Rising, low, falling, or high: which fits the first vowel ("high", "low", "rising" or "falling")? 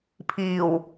low